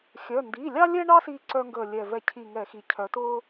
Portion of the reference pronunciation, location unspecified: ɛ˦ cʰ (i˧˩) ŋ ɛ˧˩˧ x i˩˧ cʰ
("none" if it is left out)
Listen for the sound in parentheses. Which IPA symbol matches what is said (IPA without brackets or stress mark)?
i˧˩